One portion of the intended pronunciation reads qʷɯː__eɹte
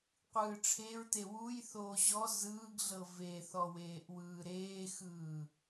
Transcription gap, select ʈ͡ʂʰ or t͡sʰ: ʈ͡ʂʰ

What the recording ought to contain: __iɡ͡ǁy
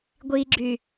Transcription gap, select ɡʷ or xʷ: ɡʷ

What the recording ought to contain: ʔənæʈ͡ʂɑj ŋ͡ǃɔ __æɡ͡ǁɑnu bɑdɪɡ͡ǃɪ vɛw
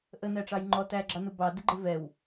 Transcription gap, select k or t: t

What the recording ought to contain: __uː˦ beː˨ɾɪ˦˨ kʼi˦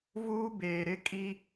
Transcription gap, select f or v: v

